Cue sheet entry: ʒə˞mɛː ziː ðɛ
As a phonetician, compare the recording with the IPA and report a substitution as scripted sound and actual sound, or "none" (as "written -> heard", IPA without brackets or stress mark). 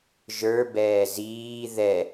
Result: m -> b